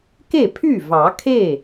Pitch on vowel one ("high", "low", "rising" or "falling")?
falling